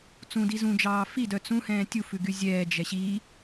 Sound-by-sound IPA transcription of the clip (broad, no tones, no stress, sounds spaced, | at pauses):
t͡s ũ d i z ũ d͡ʒ ɑː f i d œ t͡s ũ h ɛ̃ː tʲ u f ʉ ɡ y zʲ ɛː d͡ʒ ɛ ɕ i